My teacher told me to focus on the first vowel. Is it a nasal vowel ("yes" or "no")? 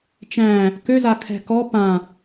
yes